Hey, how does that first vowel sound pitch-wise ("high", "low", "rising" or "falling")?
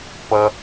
high